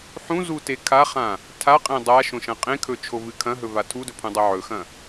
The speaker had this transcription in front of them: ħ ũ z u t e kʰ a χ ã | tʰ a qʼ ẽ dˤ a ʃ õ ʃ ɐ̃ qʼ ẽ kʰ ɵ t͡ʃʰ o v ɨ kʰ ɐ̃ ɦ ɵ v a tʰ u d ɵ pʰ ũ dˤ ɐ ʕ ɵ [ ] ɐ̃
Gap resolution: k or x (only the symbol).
x